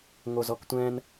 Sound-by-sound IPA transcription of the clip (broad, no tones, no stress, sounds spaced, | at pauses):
ŋ o z ɔ k tʷ ɛ̃ n